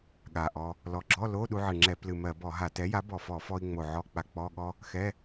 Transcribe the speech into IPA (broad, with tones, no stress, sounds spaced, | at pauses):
ɠ a˨˩ ʔ ɔ˧ | l ɔ˨˩ ɡ͡ǁ ɔ˧˥˧ l o˧˥˧ ɗ u˧ ʕ ɨ˨˩ ŋ͡ǁ ɛ˧˩˧ p l ɨ˨˩ m ɜ˧˩˧ b ɔ˧˩˧ ɦ a˧˩˧ t ɛ˩˥ j a˩˥ b ɔ˨˩ f ɔ˧˩˧ f ɔ˧ i̯ ŋ͡m o˨˩ ʕ ɔ˧˥˧ k͡p a˧ k͡p ɔ˧˥˧ ɠ ɔ˥ | x ɛ˧˥˧